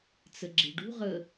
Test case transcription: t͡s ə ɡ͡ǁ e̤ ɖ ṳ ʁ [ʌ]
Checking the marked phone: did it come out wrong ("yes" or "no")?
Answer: yes